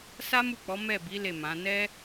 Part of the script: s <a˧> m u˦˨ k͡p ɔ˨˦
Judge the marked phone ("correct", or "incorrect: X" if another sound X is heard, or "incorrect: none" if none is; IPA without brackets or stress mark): incorrect: a˦